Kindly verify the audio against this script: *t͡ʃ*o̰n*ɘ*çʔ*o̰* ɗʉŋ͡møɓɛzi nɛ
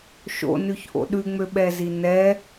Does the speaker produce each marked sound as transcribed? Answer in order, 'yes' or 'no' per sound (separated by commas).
no, no, yes